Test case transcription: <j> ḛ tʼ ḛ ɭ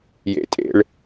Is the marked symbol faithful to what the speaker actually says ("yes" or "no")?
yes